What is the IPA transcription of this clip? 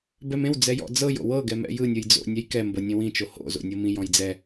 b ɛ m ẽ w d͡z ɛ j ɔ̰ d͡z ɤ j o̰ w ɤ ɡ ɛ m ɛ̰ j ɯ nʲ ɯ j d͡z o̰ nʲ ɛ j k ɛ m b ɤ nʲ ẽ w ĩ t͡ʃ o h o̰ z o̰ nʲ ɤ m ĩ j ɔ̃ j d͡z ɛ

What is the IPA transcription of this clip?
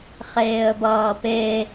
χ eː ə̯ b ʌː p e

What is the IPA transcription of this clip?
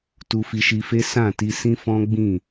t u˧ f i˧ ʃ i˧ f e˦ s ã˦˨ t i˧ s ĩ˦ f ɔ̃˦ ɡ͡b ĩ˦˨

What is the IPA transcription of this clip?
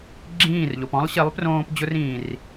ɡ͡ǁ ĩː˦˨ r ʎ o˨ p ɔ̃˦ lˠ ɕ i˨˦ lˠ p r õː˦ p d͡ʑ ʊ˦ r ĩː˨ r

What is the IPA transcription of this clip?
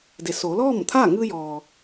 d e˩ s oː˩˧ l ɔː˥˨ m t̪ʰ aː˥˨ ŋ ɯː˧ j ɔː˩

